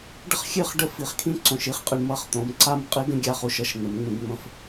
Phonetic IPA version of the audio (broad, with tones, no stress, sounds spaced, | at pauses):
ɖ ə˦ χ xʲ ɨ˦˨ χ ɖ ə˦ f i˨ χ kʰ ĩ˧ ǀ õ˨ ʃ i˦ χ qʼ ɨ˨ ɳ m ʌ˦˨ χ t̪ õ˨˦ m ǀ a˦ m qʼ i˦ ɡ ə̃˦ ɡʲ a˧ χ u˨ ʃ ʌ˧ ʃ n̪ ə˨˦ m ŋ͡m ũ˧ ɡ ŋ͡m ə̃˧ f